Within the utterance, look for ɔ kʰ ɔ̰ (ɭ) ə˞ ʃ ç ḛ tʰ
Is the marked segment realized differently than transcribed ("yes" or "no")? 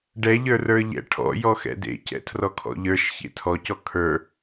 yes